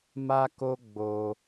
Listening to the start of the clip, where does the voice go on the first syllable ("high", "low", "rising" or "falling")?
high